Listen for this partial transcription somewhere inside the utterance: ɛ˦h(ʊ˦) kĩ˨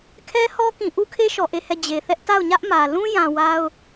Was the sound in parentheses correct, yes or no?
no